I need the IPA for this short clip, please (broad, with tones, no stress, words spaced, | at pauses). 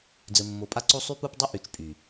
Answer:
d͡zɘ˨mːo˨pʼa˦ǀo˦ sˤy˦pu˦pdˤɘ˦ ʔy˨t͡ʃpʼy˨